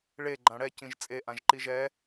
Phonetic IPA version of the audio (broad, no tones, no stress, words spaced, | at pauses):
ɭe ɡ͡ǃãɽɛ cĩʒt͡sʼe ʔãʒǃiʒɛ